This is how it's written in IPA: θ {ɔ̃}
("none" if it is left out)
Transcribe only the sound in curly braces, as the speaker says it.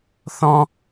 ɔ̃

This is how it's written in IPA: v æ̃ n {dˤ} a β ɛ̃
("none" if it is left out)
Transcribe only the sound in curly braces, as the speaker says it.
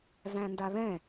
d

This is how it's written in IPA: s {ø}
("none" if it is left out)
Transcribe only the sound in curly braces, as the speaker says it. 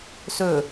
ɵ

